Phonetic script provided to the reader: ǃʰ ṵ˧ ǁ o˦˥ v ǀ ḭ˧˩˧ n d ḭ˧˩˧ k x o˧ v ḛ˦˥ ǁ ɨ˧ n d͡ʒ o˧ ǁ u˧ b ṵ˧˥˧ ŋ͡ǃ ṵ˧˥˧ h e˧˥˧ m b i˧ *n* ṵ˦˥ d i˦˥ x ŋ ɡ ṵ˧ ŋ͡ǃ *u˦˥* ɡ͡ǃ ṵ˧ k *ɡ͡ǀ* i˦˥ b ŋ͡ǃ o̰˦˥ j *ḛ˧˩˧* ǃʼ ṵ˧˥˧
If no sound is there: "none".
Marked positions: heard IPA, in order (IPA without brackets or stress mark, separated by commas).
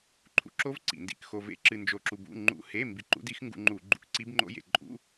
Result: ǃ, u˧˩˧, ǀ, ḛ˧˩˧